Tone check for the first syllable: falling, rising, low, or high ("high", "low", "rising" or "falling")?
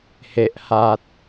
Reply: low